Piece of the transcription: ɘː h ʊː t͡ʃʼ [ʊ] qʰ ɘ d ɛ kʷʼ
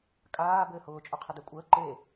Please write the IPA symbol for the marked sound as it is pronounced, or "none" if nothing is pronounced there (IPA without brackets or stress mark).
ʊ